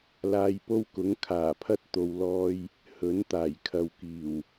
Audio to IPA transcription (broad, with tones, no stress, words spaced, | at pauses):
laː˧jpo˥wkʊ˨˥ŋ kʰaː˨˩pʰɐ˥t̚ t̪o˨w lɔː˧j | hɵ˨˥nt̪aː˨˩j kʰɐ˨wkiː˨˩w